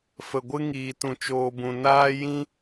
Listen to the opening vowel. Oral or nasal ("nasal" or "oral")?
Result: oral